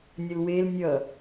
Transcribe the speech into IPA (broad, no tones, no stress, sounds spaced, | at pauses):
nʲ ə l w e l nʲ ʌ